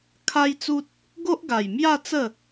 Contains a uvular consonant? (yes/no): no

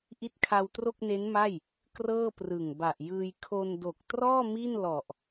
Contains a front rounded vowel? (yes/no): no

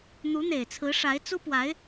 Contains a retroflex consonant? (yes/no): yes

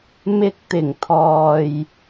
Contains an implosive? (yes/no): no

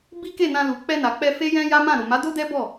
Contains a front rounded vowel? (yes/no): no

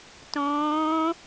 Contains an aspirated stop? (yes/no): no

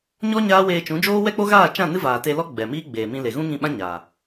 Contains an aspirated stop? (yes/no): no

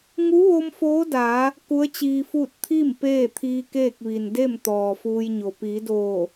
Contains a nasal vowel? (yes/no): no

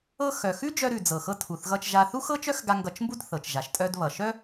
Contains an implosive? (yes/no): no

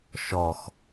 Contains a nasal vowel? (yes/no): no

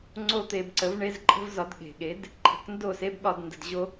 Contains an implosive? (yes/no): yes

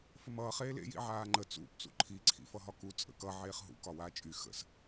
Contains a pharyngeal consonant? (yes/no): yes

